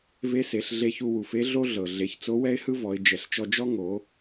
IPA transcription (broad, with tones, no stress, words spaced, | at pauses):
ve˧˥se˩˧ɬ ɮe˧çu˧wu˩fe˧˥ ɮo˥ɮɤ˩ ɮe˩˧çt͡so˧˥ wɛ˥ɪ̯hɯ˥vɔ˩˧ɪ̯ d͡ʒɛ˩ɬt͡ʃɔ˧d͡ʒɔ˥ ŋo˩˧